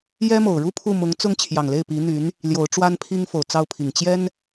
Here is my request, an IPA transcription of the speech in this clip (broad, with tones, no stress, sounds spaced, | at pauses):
j ɛ˥ m o˨˩ ʊ̯ ɻ u˥ pʰ u˥˩ m ʊ˧˥ ŋ t͡s ʊ˥ ŋ t͡ɕʰ j ɑ˨˩ ŋ l e˥˩ ɪ̯ p i˧˥ n̪ y˧˥ n | l j o˧˥ ʊ̯ ʈ͡ʂ w a˥ n pʰ i˥ ŋ f o˨˩ ʊ̯ t͡s ɑ˥˩ ʊ̯ pʰ i˨˩ ŋ t͡ɕ j ɛ˥ n